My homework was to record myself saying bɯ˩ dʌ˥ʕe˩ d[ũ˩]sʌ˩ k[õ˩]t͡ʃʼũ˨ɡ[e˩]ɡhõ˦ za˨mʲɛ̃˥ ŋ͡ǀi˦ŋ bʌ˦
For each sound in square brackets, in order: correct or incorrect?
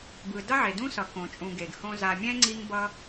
incorrect, correct, correct

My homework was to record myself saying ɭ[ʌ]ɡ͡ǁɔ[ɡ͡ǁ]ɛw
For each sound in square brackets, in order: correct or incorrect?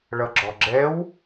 correct, correct

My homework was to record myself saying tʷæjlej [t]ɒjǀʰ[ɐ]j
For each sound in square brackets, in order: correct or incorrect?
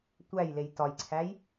correct, incorrect

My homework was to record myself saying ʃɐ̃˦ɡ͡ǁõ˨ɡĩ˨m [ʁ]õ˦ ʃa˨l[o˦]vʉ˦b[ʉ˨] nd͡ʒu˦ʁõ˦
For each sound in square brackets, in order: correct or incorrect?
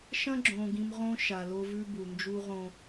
correct, correct, incorrect

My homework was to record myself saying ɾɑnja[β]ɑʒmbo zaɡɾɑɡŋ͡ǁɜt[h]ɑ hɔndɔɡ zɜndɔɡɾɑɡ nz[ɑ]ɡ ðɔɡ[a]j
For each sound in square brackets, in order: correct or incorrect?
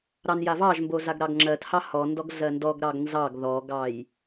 incorrect, correct, correct, incorrect

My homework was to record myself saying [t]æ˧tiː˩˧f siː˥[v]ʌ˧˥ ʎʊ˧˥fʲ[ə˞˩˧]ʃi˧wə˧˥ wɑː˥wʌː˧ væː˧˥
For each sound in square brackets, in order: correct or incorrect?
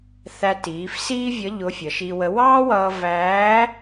incorrect, incorrect, incorrect

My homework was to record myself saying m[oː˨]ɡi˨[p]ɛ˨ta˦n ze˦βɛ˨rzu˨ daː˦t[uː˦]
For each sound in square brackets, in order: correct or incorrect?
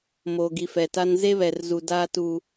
correct, incorrect, correct

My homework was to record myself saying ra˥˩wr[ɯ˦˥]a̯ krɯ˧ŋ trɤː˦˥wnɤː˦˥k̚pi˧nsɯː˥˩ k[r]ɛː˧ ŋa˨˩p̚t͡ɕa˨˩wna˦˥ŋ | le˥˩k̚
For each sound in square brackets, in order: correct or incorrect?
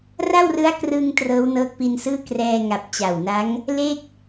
correct, correct

